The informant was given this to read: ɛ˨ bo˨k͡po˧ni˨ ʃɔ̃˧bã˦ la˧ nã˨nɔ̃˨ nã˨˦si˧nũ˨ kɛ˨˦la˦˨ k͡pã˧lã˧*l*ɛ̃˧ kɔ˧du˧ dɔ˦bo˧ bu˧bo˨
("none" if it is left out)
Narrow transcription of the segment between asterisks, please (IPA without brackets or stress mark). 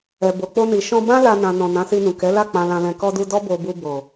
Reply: l